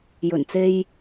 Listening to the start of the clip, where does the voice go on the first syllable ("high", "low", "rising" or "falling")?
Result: low